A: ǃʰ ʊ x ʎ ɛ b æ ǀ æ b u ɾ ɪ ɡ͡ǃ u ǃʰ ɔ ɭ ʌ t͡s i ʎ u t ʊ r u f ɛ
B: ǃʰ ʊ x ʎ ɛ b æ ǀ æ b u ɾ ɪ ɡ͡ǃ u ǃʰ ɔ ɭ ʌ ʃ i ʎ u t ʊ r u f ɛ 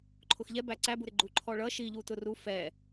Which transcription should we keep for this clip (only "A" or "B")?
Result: B